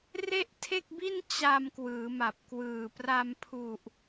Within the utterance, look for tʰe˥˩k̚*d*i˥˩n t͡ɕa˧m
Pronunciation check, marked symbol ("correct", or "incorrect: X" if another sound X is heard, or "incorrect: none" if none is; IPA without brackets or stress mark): incorrect: b